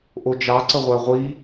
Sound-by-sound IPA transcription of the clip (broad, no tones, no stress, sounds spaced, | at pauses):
ʔ o d͡ʒ ɑ ǀ ə ʁʷ æ ʁʷ i